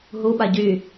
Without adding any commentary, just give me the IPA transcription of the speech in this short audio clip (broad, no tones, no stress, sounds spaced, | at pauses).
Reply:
ɦ u ɓ a ɟ y